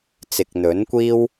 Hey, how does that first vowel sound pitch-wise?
low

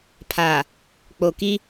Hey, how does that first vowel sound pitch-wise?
low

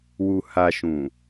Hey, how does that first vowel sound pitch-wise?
low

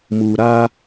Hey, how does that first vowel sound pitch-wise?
low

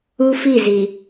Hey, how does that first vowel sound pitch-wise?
high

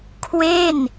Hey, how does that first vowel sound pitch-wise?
falling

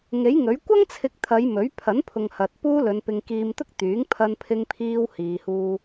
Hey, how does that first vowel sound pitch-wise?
rising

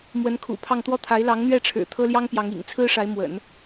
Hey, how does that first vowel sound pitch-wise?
rising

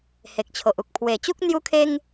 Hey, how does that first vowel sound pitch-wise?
low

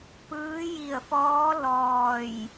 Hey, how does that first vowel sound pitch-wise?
rising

